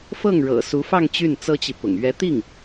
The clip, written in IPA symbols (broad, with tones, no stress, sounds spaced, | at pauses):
f ɤ˥˩ ŋ ɻ ɤ̰˨˩ s u˧˥ f ɑ˥˧ ŋ t͡ɕ y˥˩ n t͡s ɤ˥ t͡ɕ i˨ p ʊ̰˨˩ ŋ ɥ ɛ˧˥ t̪ i˥˩ ŋ